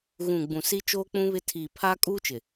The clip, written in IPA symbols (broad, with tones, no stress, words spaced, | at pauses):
ɣũ˨ ɡ͡bũ˨si˦ t͡ʃoː˦k͡pũ˦βɪ˦ tʰiː˨pʰaː˦kʼuː˦t͡ʃɪ˨